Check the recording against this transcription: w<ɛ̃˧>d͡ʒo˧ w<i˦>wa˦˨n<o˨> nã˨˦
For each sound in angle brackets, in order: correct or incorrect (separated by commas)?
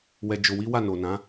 incorrect, correct, correct